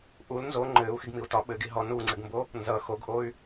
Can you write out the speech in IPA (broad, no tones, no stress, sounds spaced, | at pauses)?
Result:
ʔ u l n z o ŋ͡ǃ ɘː u̯ x i ɡ m i u̯ t ɒ ɓ ɘ ɡ i ɦ ɔ n u ŋ͡ǀ ɘ ɡ m b o | n z ʌ x o ɡ ʔ o y̯